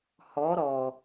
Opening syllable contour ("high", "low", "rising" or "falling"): rising